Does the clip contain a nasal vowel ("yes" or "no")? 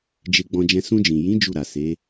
yes